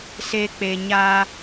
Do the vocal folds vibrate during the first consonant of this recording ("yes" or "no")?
no